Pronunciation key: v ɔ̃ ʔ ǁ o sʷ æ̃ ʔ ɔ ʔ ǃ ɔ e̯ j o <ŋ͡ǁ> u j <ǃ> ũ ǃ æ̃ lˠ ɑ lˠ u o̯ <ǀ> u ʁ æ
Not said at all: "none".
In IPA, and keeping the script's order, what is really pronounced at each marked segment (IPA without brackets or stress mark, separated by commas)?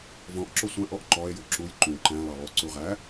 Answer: ǁ, ǃ, ǀ